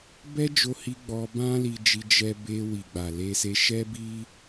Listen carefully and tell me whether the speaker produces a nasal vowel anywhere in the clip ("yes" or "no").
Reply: yes